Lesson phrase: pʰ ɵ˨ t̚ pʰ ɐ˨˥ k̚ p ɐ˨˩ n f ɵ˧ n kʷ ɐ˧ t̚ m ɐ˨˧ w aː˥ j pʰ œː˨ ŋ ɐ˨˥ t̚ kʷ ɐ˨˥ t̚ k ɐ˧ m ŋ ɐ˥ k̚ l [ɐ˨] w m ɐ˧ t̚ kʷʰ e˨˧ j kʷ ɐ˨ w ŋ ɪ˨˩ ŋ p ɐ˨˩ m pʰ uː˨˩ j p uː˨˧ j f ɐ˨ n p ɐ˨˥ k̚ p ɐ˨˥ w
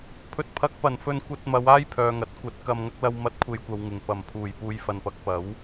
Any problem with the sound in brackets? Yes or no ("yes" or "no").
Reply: yes